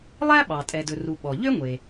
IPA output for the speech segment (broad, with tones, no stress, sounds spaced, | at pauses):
lˠ æ˥ ɓ ɑ˩ tʼ ɛ˩ d ɵ˩ r u˩ ɓ ɔ˩ ʎ ø˥ ŋʷ e˩